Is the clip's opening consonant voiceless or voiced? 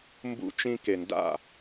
voiced